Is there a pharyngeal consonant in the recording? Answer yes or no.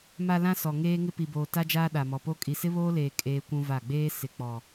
no